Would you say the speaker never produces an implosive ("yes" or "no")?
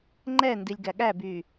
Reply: no